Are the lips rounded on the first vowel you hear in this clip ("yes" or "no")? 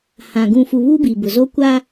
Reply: no